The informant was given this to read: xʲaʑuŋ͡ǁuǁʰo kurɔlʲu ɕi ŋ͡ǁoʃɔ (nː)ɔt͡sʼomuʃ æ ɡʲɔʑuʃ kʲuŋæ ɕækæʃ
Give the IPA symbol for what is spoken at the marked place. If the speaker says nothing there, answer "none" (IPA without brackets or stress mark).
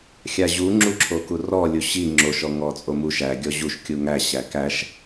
ŋ